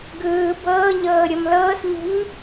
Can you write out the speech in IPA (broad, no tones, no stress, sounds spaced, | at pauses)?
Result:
ɡ ɯː b ɤː ɲ ɤː ɾʲ ɔ m l ɤː s ɲ ṳ ɲ